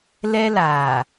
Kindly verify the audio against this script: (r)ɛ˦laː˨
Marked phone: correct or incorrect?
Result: incorrect